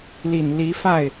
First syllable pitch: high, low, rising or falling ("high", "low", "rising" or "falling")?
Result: low